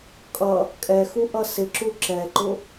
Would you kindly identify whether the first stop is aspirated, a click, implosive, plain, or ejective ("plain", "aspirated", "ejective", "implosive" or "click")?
ejective